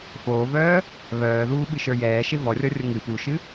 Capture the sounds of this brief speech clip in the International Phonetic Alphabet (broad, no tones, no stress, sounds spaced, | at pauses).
f oː v œː | β œː ð uː ɓ ɨ ʃ ə˞ j ɛː ʃ e v ɔ rʲ ɔ rʲ o ŋ ɨ p u ʃ ɨ